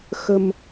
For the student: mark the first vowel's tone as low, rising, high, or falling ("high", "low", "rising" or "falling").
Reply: low